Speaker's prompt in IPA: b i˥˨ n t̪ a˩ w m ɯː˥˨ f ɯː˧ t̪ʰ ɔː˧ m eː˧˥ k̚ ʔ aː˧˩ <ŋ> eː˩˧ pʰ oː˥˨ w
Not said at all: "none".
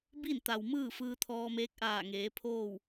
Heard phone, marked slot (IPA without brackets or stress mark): ŋ